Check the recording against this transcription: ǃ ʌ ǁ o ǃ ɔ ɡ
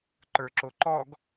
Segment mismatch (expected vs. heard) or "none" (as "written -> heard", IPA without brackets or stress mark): ʌ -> ə˞